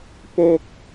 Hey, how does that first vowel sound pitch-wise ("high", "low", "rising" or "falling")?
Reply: high